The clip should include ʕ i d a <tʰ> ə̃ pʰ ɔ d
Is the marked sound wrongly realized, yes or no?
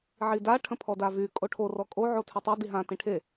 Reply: yes